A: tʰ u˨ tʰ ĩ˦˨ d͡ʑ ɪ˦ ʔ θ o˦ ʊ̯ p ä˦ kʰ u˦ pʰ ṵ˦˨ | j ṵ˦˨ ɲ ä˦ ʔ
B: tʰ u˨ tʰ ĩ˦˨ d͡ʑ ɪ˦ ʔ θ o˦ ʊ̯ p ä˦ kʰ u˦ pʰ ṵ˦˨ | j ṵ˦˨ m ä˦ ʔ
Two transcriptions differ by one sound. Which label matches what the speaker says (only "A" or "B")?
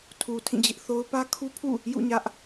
A